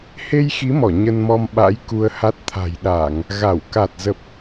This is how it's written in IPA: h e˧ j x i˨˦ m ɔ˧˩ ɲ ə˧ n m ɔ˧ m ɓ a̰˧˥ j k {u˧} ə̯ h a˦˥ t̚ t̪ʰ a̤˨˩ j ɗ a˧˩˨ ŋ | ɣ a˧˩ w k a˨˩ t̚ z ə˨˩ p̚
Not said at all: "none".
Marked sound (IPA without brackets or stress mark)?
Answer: u˧